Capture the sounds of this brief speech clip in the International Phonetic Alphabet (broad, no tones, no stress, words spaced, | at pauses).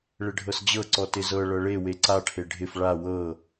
ɭɪɖʱɤsd͡ʑɤǀɔ tɪzɤ ɭɤɭewe ǀaʈʰe ɖʱɪf ɭa wɤ